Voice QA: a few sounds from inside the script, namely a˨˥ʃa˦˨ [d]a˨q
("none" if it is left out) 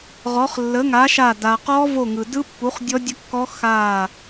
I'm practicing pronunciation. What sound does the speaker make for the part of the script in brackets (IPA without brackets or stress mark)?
d